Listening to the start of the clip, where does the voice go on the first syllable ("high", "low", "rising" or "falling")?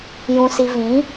low